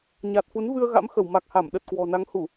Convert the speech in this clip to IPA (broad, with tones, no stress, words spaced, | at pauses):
ɲa˨˩t̚fu˨˦nvɨ˧ə̯ ɣa̰˧˥mxə˧˩w ma˨˩k̚ha˧˩mɗə˨˩t̚ kwɔ̤˨˩na˨˦ŋ hu˧˩˨